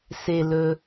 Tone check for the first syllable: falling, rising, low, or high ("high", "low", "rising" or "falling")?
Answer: low